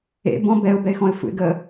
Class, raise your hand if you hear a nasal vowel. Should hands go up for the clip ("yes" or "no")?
yes